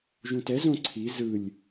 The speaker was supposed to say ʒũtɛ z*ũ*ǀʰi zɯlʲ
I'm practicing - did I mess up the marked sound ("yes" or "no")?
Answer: yes